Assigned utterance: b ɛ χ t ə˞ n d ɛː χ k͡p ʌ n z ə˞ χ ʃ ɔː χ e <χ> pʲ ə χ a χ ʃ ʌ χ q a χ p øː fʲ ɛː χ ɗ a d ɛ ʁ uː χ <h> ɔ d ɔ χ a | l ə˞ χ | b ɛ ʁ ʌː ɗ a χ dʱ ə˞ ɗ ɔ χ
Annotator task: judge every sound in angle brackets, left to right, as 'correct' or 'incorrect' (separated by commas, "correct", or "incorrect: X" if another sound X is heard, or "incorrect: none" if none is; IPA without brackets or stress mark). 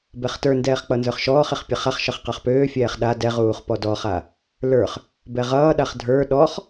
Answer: correct, incorrect: p